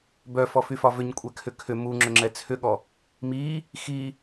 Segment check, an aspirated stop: present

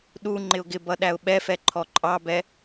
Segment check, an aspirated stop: present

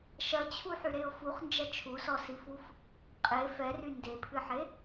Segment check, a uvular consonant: present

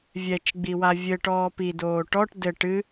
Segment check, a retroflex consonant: present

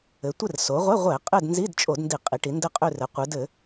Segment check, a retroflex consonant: present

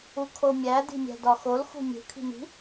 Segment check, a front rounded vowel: absent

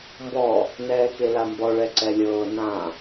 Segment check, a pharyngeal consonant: absent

